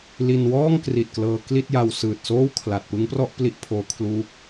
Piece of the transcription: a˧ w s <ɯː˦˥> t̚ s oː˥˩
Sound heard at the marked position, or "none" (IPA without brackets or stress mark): ɯː˨˩